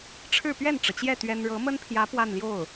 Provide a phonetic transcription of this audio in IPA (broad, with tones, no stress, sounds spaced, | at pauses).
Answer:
ʈ͡ʂʰ ɻ̩˥˧ p ɥ ɛ˥˩ n ʈ͡ʂ ɤ˩ t͡ɕ j ɛ˥˩ t̪ ɥ ɛ˥ n ɻ ɤ˧˥ m ə˥ n pʰ j ä˧˥ p w a˥˧ n l j o˥˩ ʊ̯